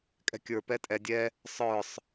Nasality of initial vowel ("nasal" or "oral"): oral